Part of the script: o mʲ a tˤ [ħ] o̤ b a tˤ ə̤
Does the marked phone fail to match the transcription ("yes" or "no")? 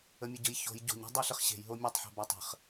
no